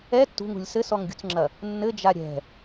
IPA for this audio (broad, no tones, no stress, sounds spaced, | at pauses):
ɛ tː ṳ ŋ ṳ lʲ s ɘ s ɔ ŋ ɡʲ ṳ t͡s ŋ͡ǁ ɐ | nː ɘ d͡ʒ a ɾʲ ɛ̤